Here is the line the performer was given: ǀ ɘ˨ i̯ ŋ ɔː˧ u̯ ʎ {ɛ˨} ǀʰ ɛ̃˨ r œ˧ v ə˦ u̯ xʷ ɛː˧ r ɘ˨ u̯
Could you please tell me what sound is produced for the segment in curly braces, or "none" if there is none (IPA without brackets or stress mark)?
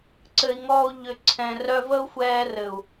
ʏ˨